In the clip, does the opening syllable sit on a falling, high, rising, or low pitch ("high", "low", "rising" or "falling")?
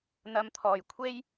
low